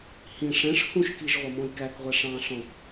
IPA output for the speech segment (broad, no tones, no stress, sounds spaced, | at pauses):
h ĩ ʂ ɛ̃ ʂ h ũ ʃ k i ʒ ʁʷ ʌ m ɔ̃ j k æ k ʁʷ ɛ ʂ ɑ̃ ɬ ɔ̃ k